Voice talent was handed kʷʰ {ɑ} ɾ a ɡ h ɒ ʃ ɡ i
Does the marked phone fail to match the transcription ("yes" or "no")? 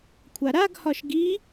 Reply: yes